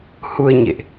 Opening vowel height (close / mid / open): close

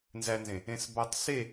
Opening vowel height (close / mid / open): open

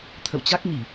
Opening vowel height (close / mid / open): mid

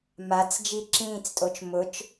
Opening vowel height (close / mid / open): open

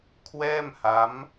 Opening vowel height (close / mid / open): mid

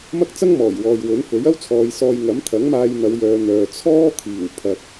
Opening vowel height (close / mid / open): open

